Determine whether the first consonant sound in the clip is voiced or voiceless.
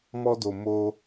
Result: voiced